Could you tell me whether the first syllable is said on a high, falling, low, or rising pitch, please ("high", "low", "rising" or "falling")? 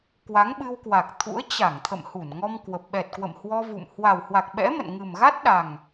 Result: rising